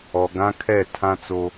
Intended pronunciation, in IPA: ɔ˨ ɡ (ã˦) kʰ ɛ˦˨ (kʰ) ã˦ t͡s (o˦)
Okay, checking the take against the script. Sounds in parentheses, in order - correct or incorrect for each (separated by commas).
correct, incorrect, correct